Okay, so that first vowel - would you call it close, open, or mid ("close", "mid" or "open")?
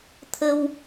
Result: mid